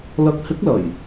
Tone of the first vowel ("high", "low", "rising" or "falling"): rising